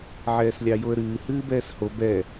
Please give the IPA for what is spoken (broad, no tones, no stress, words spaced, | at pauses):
ʕɛːslʲɑjoə̯ɾɨː hɨːbɛːsho bɛ